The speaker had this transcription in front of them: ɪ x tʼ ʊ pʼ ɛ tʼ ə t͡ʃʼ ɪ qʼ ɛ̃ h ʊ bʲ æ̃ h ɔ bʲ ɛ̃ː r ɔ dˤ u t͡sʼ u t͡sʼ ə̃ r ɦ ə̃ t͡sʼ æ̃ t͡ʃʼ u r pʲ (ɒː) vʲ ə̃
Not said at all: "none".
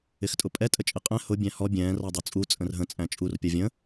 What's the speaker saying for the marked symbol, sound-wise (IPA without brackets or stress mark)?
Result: ɒ